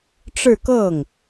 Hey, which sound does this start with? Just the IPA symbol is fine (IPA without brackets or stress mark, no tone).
ʈ͡ʂ